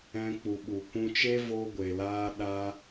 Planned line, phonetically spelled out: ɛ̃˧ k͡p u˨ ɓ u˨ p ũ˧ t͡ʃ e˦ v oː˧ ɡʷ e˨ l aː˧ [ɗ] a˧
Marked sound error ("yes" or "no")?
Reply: no